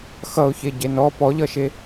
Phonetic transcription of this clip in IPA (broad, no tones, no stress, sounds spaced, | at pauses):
x ʌ ʊ̯ ç e ɟ e n ɔ p ɔ ʎ ʌ ʃ e